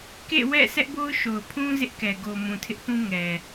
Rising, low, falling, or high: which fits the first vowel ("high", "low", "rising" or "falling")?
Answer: falling